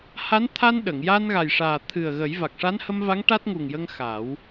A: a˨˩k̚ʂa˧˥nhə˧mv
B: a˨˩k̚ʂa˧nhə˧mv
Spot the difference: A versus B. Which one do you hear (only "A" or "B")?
A